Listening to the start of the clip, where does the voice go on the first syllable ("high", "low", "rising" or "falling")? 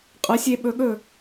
rising